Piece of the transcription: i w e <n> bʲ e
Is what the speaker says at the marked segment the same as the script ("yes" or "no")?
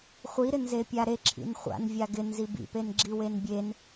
yes